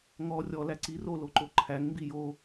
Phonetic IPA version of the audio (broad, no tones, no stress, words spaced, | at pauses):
ŋɔ rʲɔ læǀi roloǃo ǃʰæŋmbi jo